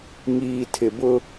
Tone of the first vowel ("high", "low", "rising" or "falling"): low